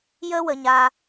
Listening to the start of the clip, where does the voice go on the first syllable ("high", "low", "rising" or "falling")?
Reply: high